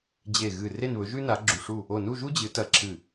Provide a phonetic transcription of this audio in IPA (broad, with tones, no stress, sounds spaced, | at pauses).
d͡ʑ e˧˩ ɣ ɨ˧˩ r e˥˨ n β ɵ˨˥ ʒ ʉ˥ n a˨˥ ɡ͡ǁ u˧˩ ʂ u˥˨ | o˧˩ n u˥˨ ʒ u˥ d͡ʑ ɨ˨˥ t ɐ˧˩ ǁʰ ɨ˧˩